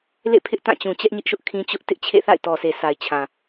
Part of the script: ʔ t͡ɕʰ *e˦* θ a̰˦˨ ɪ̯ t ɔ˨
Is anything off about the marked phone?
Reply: yes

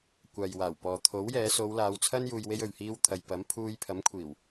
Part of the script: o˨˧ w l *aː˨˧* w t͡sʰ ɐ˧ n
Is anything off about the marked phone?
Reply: no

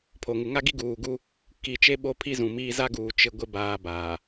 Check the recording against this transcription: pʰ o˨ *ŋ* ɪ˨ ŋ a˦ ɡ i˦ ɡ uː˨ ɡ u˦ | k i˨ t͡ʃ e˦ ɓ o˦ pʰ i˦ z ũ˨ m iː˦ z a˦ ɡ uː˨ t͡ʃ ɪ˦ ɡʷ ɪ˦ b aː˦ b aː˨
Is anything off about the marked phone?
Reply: no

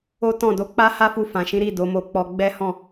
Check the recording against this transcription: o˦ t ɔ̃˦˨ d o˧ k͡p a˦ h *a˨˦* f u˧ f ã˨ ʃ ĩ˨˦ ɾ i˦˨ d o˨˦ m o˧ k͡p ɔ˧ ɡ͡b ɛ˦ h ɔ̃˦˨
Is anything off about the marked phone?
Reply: yes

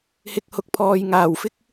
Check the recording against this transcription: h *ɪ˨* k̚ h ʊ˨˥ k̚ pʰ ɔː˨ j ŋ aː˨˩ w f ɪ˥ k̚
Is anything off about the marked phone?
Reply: no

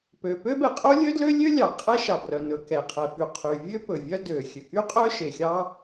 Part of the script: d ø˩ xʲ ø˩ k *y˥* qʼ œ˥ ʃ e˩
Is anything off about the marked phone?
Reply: no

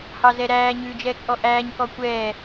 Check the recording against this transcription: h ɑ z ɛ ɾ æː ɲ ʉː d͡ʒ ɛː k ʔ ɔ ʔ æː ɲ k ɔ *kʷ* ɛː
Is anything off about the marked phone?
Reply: no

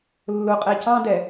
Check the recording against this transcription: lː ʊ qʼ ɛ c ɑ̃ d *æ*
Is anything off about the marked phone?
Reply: yes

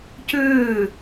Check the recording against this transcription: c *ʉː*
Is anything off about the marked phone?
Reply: no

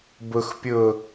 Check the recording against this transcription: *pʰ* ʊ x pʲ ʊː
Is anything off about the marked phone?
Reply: yes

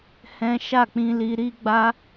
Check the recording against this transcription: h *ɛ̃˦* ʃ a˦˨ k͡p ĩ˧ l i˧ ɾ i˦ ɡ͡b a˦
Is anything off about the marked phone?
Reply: no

